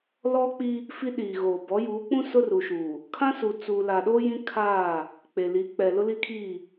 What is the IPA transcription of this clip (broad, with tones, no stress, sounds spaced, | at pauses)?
l ɔ˦ k͡p i˦ | f i˦ ɗ iː˨ ɣ oː˨ b ɔ˨˦ j uː˨˦ k͡p ũ˦ s ʊ˦ r u˨ ʃ uː˨ | kʰ ã˦ s u˨ t͡s uː˨ l a˨ ɗ o˦ j ĩ˦ kʰ aː˦˨ | k͡p e˨ l i˨˦ k͡p ɛ˨ l ʊ˦ l i˦ kʰ iː˦˨